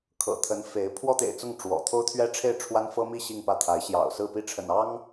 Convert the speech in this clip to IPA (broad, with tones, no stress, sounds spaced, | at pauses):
kʰ ɤ̰˨˩ t̪ʰ ə˧˥ n f e˧˥ ɪ̯ pʰ w ɔ˥ t̪ ḛ˨˩ ɪ̯ t͡s ʊ˥˩ ŋ ʈ͡ʂ w ɔ̰˨˩ t̪ʰ o˥ ʊ̯ t̪ʰ ɥ ɛ˥ ʈ͡ʂʰ e˥˩ ɪ̯ ʈ͡ʂʰ w a˥ n f ɤ˥ m i˥˧ ɕ i˥˧ ŋ p ä˥˩ t̪ʰ a˧˥ ɪ̯ ɕ j ɑ̰˨˩ ʊ̯ s ɹ̩˥˧ p i˥˩ ʈ͡ʂʰ ə̰˨˩ n ɑ˥ ŋ